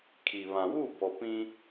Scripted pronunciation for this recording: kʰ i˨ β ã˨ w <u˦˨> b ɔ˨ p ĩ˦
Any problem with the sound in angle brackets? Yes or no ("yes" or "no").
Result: no